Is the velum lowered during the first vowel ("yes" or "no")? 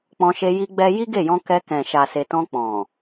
yes